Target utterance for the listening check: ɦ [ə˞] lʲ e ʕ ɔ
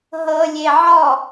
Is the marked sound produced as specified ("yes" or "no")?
no